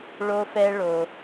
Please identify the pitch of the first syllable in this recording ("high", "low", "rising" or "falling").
high